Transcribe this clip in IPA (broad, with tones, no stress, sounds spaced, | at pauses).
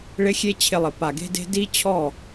ɭ ɪ˦ xʲ e˦ t͡ɕʰ ɪ˧ lˠ ɪ˨ p a˨ ɡ e̤˧ d e̤˧ d i˦ t͡ɕʰ ɔ˦˨